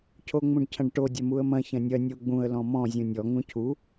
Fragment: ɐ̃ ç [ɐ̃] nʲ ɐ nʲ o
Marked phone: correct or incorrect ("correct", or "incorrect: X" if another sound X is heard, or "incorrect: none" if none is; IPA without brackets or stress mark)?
correct